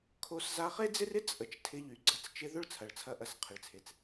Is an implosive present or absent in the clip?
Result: absent